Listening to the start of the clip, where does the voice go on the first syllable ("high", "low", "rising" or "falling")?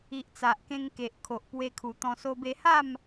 low